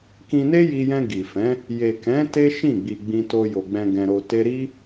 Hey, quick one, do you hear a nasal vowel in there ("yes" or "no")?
yes